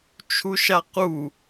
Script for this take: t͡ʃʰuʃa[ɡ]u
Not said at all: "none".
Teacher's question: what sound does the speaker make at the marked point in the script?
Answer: q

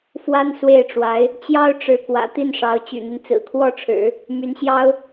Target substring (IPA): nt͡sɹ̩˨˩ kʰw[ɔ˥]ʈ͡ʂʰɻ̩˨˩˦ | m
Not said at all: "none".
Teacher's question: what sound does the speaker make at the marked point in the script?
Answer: ɔ˥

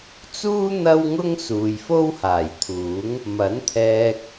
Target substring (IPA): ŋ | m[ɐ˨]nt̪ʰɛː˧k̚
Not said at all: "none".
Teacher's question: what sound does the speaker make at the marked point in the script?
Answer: ɐ˨˥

